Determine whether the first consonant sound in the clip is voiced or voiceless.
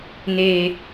voiced